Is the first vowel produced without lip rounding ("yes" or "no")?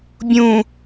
no